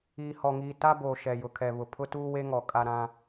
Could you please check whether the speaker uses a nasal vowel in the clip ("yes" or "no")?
yes